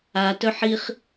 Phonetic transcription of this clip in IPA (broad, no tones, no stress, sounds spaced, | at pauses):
a t œ ħ i χ